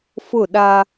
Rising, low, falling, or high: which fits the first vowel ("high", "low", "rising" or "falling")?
falling